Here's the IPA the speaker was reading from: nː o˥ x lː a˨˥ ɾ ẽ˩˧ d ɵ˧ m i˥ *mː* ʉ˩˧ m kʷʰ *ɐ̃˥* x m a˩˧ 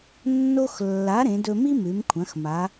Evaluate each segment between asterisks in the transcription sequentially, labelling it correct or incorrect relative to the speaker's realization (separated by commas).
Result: incorrect, incorrect